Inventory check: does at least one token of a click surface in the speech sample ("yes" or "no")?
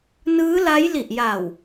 no